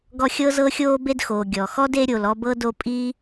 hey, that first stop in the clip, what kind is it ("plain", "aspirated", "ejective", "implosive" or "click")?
plain